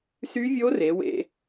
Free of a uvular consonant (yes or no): yes